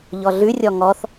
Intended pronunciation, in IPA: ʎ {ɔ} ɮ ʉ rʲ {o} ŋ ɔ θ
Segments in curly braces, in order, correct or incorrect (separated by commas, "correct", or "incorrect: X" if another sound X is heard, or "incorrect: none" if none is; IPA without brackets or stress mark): correct, incorrect: ɔ